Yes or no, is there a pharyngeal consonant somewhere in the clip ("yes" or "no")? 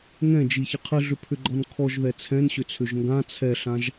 no